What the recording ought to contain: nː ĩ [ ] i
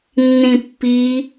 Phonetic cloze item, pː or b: pː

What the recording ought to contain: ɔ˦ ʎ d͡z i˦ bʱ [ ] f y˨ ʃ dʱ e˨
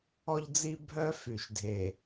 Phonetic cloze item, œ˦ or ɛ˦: œ˦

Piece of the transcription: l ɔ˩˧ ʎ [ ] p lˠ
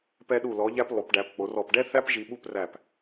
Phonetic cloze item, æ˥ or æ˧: æ˧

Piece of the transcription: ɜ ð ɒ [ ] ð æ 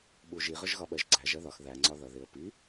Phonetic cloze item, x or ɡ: x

